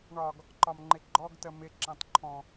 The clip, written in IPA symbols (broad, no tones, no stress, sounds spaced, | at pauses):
ɳ ɒ ɡ | ǃ ɒ m ŋ͡ǃ ɪ ɡ͡ǃ ɔ ɡ t ə m ɪ ǁ ɑ̃ t ǃʰ ɔ̃